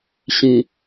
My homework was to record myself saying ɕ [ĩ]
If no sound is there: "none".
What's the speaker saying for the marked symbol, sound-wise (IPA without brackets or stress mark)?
ĩ